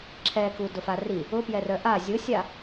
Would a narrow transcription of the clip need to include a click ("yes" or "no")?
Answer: yes